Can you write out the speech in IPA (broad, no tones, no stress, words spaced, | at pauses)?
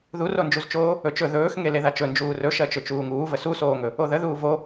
ðurond͡ʒuzt͡ʃoː | ɵt͡ʃɵ ðɵːxŋe leðat͡ʃɵ nd͡ʒuːrɵʃɜt͡ʃɵ t͡ʃuːŋuːvə susoːŋɵ | oðə ðuːvo